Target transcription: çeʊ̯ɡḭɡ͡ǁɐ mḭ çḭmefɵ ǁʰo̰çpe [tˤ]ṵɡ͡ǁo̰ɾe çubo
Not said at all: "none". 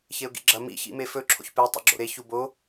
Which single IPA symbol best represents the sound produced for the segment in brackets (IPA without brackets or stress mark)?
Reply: tˤ